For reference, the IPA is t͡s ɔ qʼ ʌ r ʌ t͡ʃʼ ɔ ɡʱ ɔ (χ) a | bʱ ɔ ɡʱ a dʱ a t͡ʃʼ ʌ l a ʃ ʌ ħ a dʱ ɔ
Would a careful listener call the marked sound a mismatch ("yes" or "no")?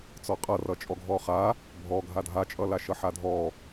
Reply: no